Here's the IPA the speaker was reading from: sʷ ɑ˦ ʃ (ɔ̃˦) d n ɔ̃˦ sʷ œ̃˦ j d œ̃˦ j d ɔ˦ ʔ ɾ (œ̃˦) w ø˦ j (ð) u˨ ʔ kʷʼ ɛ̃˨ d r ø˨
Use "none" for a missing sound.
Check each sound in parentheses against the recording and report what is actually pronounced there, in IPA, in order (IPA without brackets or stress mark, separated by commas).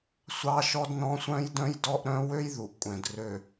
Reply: ɔ˦, œ̃˦, ð